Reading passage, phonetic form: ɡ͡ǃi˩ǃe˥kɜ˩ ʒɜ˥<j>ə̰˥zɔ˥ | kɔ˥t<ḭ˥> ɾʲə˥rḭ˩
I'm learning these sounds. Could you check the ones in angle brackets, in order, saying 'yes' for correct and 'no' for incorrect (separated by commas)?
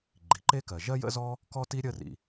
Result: yes, no